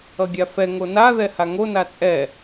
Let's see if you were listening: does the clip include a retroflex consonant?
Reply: no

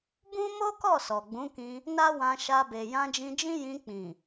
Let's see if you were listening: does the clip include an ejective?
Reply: no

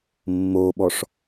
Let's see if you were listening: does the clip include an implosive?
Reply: yes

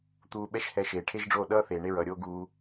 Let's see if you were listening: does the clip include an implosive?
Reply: yes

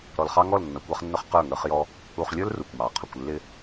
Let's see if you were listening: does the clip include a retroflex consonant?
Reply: no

